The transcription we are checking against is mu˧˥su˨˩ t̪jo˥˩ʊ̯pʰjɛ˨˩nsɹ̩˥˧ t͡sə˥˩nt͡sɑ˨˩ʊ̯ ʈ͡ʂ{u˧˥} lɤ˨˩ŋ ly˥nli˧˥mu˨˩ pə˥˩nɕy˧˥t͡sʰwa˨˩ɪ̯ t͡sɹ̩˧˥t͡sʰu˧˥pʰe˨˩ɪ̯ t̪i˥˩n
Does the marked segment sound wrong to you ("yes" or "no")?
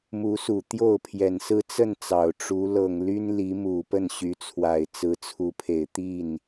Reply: no